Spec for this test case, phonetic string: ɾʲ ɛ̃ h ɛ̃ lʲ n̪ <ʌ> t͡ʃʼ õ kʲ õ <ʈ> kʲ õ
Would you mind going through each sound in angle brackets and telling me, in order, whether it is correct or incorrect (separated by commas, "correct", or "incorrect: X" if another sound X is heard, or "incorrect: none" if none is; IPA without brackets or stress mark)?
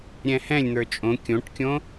incorrect: ə˞, correct